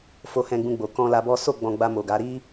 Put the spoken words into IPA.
fo˧hɛ̃˧ɡ͡bũ˧ɡ͡bo˨ kɔ̃˧la˧bɔ˦ so˦˨ ɡ͡bɔ̃˧ ɡ͡ba˧mo˨ɡa˨˦ ɾi˦

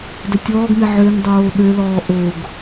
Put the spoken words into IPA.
dətʲɔːɡme ʕøŋ dˤoːɗølɔː ʔoɡ

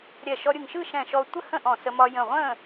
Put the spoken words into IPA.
ɾʲɛ˧˩ʃɔ˧ ɾʲɯ˧˩ŋʃɯ˥˨ʃɛ̃˧˩ʃɔ˧ tʷə˥˨hə̃˥˨ʔɔ̃˧˩ sə˧mɒ˧ jə̃˧˩ʁʷə̃˥˨

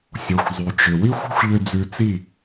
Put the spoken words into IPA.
sʲo˨xʷzˤy˨t͡ʃʏ˨ wi˦xʷɔ̤˦xʷʎʏ˧ d͡zʉ˧t͡si˦˨

